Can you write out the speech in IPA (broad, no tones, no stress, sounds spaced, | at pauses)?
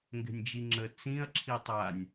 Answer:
ŋ ɡ ɛ̤ nʲ d͡ʒ i ŋ͡ǁ ə t͡s ĩ ɐ̯ ǁʰ i tˤ a nʲ